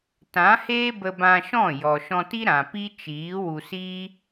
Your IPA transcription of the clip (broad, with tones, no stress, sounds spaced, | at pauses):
t ã˨˦ h eː˦ b ə˧ b ã˧ ʃ ɔ̃˦˨ j ɔ˨ ʃ ɔ̃˧ t i˦ ɾ ã˨ p i˦ t͡ʃ iː˨˦ w u˧ s iː˦